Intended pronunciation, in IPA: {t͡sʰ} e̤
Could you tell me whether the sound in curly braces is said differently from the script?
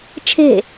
yes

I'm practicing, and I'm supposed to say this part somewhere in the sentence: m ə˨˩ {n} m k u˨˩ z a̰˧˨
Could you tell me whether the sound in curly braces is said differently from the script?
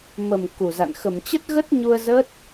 yes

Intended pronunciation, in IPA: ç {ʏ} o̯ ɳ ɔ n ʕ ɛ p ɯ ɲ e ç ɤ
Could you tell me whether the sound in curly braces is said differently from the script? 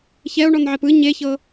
yes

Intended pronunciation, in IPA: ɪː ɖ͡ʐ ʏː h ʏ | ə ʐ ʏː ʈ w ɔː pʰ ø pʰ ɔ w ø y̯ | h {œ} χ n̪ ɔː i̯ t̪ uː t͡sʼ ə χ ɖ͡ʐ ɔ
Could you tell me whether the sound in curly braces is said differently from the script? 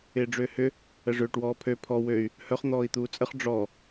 no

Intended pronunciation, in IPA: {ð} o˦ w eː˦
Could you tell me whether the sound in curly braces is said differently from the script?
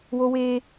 yes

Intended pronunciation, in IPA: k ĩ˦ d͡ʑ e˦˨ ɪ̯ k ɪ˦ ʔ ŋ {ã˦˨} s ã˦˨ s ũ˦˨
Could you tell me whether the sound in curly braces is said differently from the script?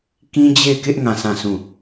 no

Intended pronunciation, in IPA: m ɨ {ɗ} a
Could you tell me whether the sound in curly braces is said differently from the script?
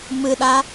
no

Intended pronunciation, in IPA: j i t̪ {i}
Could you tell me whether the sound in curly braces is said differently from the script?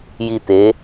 yes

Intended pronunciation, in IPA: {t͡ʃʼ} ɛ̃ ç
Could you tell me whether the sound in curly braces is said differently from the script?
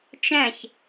yes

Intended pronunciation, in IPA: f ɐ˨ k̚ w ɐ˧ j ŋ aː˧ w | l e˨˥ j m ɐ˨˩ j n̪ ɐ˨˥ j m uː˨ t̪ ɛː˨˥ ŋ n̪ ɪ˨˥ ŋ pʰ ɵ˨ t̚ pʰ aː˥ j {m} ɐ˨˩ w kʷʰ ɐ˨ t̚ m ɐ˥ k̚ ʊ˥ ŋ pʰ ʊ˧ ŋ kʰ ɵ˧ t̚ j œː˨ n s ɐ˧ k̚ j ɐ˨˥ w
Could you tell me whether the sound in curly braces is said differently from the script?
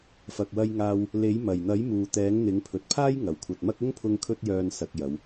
yes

